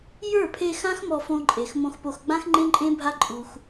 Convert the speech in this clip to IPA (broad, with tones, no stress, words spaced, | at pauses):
jə˞˦˨pʰe˧xã˦x mɔ˧fõ˧ǃʼe˨x mõ˧xpo˧x ɡ͡bã˦xŋ͡ǃẽ˦ ǃʼẽ˦bʱa˦ ǃʼu˧x